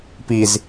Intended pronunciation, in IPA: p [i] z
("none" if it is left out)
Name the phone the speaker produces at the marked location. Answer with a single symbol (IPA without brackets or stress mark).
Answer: i